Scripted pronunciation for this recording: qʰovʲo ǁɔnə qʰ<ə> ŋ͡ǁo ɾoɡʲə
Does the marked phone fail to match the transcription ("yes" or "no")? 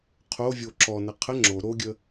no